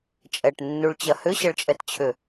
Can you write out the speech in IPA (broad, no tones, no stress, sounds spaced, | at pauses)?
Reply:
t͡ʃʼ ɛ ʈ nː u ɭ t͡ɕ ɐ h ʏ ɕ ɐ ɭ t͡ʃʼ ɛ t t͡ɕʰ ʏ